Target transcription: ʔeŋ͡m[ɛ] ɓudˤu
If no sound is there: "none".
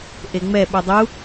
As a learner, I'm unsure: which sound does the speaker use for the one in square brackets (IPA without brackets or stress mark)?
ɛ